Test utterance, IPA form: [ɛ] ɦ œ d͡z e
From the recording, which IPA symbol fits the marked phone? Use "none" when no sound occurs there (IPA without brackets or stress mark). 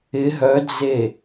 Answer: ɪ